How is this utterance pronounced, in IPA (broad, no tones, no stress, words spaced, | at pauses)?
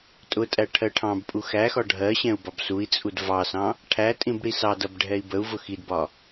tʼʊtʼæ ʈʰɜʈʰɑ̃bpʼu xæxɒ ɖʱɜɕɛ̃u̯ bɒbsui̯t͡sʼud vɑsɑ̃ | ʈʰætʼĩb ɽisɑdʌb ɖʱɛi̯bəu̯vʊ xidbɒ